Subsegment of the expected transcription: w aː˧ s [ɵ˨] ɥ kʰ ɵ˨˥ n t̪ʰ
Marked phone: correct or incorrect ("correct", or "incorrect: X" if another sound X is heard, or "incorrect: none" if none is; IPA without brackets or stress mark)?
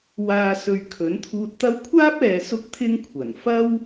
correct